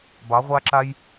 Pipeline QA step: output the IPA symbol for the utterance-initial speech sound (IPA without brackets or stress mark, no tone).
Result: b